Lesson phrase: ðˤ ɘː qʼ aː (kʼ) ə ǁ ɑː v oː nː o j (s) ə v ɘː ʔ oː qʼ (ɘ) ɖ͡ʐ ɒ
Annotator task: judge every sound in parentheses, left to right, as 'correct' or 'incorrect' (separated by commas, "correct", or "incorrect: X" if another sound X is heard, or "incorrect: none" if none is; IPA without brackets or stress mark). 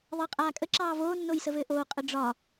correct, correct, correct